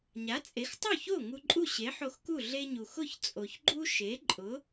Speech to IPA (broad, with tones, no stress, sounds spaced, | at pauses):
ɲ a˩˥ t͡sʼ e˩˥ x tˤ u˥˩ ç o˥˩ ŋ u˧ ǃʼ u˥˩ ɕ e˩˥ ħ o˧ x k u˥˩ ɮ e˧ ɲ u˩ x ʊ˥˩ ç t͡sʼ o˩ ç ɡ͡ǃ u˥ ʃ e˩˥ ǃʼ ʊ˩˥